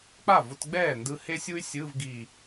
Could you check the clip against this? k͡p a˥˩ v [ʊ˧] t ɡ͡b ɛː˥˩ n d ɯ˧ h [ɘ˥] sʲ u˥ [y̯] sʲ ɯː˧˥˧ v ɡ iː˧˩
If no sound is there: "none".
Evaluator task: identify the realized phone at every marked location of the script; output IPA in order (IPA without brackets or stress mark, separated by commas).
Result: ʊ˧, e˥, y̯